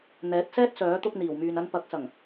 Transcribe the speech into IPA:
n̪ɛː˨˥t̚sɛː˥t̚sœː˨˥t̪ʊ˧k̚ n̪iː˨˩wmyː˨nɐ˧n pɐ˨˥k̚sɐ˨˩ŋ

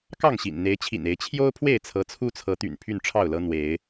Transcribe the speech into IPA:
kɑ˥˨ŋɕḭ˨˩n n̪e˨˦ɪ̯t͡ɕʰḭ˨˩ne˨˦ɪ̯ t͡ɕʰjo˦ʊ̯pʰwe˥˨ɪ̯ t͡sʰɤ˨˦t͡sʰu˦t͡sʰɤ˨˦t̪y̰˨˩n pʰy˥˨nʈ͡ʂʰɑ˥˨ʊ̯lɤ˦ n̪we˨˦ɪ̯

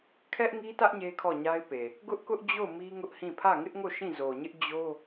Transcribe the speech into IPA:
kʰɛ˦ʔŋi˦tä˦ʔ ɲe˦kʰɔ˦˨ɲa˦ɪ̯pe˨ | ɡʊ˦ʔkʊ˦ʔd͡ʑo˦˨ʊ̯ mi˦ŋʊ˦ʔhĩ˦˨ pʰä˦˨ŋɪ˦ʔŋo˦˨ ʃĩ˦˨zo˨ɲɪ˦ʔ d͡ʑo˦

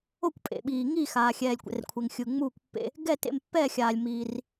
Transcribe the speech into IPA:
o˥˨kʷ pʼḛ˩ɓiː˩ ŋi˥˨ xaː˩ xʲɛː˩lʲkʷɛ̰˩rkʷʰe˩ŋ xʲɯ˩ŋ͡muː˥˨kʷpːḛ˥˨ | ɡɛ˥˨tḛ˥˨mpːɛː˥˨ xʲaː˩lʲmiː˩r

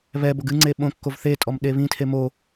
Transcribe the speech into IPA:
βɛboɡ ɨŋ͡ǀe ɓõkːov θetʼɔm ɗeβĩtʰe mo

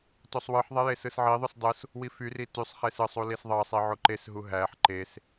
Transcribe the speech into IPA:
tosˤwɯħðˤe jesɯsʕiðˤys dˤɯs | wifyri tysˤχes ɯsˤu lisðˤɑsˤi ʕoǃesɦu ɦæħ ǃes

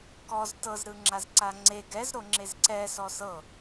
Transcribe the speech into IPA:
kɔz tɤzɾɯ ŋ͡ǁazǀaŋ͡ǀe ɡɛzɾo ŋ͡ǁezǀɛ sɔsɤ

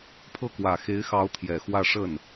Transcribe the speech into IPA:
pʰɤ˥˩kwä˨˩ xe˧˥ɪ̯xɑ˧˥ʊ̯ t̪ʰjɛ˨˩xwä˥˧ ʂə˥˩n

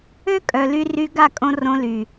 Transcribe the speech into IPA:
ø˦ kʼœ˨ly˧ ry˧ ɡa˦˨kʼõ˧ rõ˧ly˨

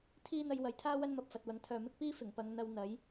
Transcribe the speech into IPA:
t̪ʰiː˥n̪ɐ˧j wɐ˨jt̪ʰaː˥ wɐ˥nmɐ˨p̚fɐ˨t̚wɐ˨˥ŋ t̪ʰœː˨mɪ˥k̚piː˥ fɪ˨˩ŋpɐ˨˧ŋ n̪ɐ˧wn̪ɐ˨˥j

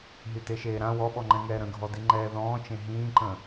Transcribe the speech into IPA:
ɦyteʃeːɾã wɔɓɔŋ͡ǃɛ̃ ŋɛːɾə̃ɡʱɔdi ŋ͡ǃɛːðɔ̃ːt͡ʃẽ ɦĩːǃə̃

